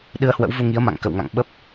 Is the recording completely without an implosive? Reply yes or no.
no